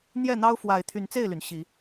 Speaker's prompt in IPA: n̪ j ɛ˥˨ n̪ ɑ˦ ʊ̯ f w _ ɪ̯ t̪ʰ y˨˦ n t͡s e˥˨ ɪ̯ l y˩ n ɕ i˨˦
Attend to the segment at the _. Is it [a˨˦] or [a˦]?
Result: a˨˦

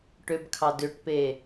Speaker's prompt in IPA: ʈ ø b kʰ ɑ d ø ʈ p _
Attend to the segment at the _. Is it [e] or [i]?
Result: e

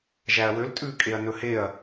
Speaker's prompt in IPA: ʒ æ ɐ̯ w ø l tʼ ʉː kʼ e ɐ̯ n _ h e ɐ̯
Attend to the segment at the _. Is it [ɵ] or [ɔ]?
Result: ɵ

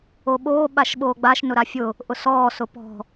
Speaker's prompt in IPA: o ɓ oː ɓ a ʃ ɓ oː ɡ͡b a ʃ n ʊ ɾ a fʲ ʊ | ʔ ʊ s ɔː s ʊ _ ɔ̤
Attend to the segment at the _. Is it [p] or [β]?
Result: p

